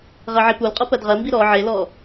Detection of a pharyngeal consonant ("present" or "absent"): present